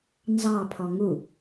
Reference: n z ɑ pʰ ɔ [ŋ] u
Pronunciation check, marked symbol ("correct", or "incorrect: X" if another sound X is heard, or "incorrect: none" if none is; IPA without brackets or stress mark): correct